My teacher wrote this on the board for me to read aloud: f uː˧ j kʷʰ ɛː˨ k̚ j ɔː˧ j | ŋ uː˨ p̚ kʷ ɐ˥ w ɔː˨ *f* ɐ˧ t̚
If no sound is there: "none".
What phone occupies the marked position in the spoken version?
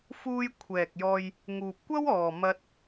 m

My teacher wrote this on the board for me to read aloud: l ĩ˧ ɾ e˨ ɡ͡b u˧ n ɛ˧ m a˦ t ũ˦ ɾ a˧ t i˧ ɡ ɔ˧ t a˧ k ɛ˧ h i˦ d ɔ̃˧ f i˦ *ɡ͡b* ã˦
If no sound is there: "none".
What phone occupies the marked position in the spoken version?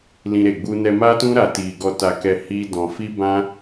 b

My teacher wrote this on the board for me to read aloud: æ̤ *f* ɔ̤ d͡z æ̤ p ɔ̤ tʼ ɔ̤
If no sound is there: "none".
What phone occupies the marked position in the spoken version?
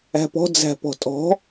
p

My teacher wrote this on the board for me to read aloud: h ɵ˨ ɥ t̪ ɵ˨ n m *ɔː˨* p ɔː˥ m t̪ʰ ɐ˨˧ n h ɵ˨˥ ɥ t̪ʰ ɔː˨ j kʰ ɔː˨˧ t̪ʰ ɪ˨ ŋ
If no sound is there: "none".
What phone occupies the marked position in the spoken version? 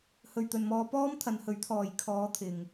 ɔː˨˧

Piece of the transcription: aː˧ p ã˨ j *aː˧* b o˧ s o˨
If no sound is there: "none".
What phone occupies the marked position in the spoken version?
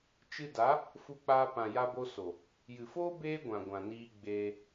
a˧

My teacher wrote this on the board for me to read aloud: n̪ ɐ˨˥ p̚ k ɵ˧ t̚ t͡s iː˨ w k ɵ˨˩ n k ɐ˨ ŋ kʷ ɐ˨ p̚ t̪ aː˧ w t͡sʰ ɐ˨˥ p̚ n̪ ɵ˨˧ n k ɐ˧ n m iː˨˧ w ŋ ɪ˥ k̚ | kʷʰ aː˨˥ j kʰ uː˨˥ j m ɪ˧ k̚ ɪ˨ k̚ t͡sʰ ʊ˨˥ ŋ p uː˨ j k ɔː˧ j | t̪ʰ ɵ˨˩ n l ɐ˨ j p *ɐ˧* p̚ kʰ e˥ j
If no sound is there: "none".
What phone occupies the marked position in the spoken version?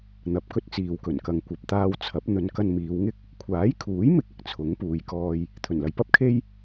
ɐ˥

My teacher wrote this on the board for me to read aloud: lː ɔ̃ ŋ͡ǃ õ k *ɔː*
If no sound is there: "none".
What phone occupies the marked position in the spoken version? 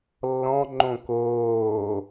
oː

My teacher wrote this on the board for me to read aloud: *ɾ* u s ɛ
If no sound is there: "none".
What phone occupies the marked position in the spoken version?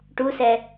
ʈ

